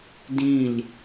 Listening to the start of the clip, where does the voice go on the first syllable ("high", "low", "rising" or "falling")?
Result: falling